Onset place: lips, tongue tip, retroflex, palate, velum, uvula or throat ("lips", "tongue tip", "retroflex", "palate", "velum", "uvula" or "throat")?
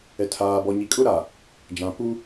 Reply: tongue tip